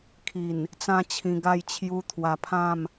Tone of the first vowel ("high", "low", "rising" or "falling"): low